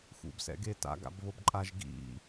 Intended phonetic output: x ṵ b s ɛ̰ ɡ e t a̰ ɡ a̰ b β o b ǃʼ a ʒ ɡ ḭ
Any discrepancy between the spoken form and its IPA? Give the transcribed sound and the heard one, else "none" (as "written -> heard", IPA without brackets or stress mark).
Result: none